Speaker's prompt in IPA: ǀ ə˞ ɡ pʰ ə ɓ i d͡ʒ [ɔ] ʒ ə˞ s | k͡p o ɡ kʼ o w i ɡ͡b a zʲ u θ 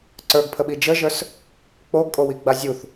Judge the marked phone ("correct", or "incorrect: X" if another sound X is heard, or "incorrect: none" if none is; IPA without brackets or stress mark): incorrect: ə